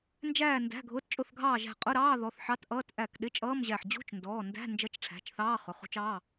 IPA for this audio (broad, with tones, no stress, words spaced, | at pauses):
nd͡ʒæː˧˩ ndæ̤˩˧˩ɡʱʊː˩˧˩tt͡ʃʼʊ˧˩θɡʱɑː˧˩ ʒæ̤˧˩qʼʊ˧˥˧ɾɑː˧˥˧ ðɔ˩˧˩θħɑ˧˥˧tʔʌː˧˥˧t ʔæ˧˩k ɗɪ˧˥˧t͡ʃʼʌː˧˥˧mʑæ˧˩ħ d͡ʑṳ˧˥˧t͡ʃndɔː˩˧˩ndæ̤˧˥˧ nd͡ʒʌ˧˥˧t͡ʃʈ͡ʂʰæ̤˩˧˩t͡ʃθɑː˧˥˧ χʊ˩˧˩χṳ˧˥˧t͡ʃɑː˧˥˧